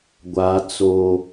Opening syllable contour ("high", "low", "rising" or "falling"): high